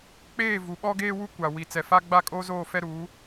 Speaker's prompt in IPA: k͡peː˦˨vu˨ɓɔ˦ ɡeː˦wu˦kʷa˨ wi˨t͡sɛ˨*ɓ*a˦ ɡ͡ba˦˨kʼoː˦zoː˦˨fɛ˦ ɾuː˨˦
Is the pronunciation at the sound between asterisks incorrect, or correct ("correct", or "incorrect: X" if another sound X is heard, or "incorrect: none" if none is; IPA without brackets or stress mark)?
incorrect: f